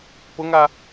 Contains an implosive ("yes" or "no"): no